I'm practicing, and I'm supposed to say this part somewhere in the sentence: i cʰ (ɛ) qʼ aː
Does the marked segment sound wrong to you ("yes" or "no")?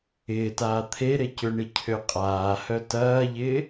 yes